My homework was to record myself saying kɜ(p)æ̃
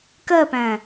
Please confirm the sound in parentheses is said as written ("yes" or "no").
yes